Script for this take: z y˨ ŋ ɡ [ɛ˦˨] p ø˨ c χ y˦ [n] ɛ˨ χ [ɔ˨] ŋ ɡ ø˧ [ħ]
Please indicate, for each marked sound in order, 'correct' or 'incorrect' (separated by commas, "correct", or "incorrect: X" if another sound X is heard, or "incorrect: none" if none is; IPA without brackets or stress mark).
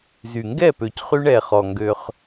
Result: correct, incorrect: ɳ, correct, incorrect: χ